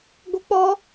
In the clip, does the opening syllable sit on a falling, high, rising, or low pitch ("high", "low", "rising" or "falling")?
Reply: high